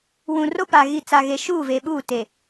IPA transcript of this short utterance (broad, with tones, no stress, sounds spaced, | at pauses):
w ũ˨ r o˦ p a˨ ɣ i˨ t͡s a˨ ɣ e˨ ʃ uː˦˨ v e˨ ɓ uː˦˨ t e˨